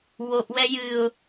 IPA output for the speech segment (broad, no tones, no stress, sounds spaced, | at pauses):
w o ʔ w ɛ j ɨ ʊ̯